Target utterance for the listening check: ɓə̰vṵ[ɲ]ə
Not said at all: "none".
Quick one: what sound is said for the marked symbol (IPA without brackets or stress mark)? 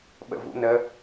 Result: n